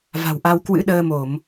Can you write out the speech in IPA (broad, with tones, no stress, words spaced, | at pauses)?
va̤˨˩wʔa˧w kwɨ̰˧˥ɗəː˧mo˧˩˨m